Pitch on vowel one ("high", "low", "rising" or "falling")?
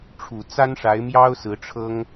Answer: low